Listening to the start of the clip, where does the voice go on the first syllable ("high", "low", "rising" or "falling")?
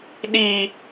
low